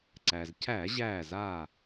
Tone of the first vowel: low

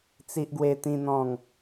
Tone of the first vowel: high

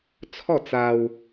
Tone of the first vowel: falling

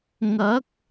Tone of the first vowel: rising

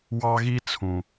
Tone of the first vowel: high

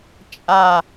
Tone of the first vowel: low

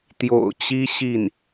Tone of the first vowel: low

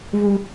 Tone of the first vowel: high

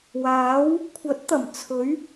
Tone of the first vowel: rising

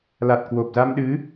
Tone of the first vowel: low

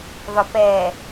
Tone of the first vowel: low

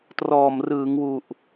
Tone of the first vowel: low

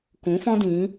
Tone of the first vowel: rising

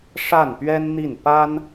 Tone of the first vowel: falling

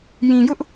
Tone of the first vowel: low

